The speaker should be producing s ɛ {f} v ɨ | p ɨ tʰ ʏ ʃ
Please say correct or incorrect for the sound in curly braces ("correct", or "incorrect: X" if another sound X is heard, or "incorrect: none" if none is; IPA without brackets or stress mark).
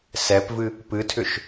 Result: incorrect: p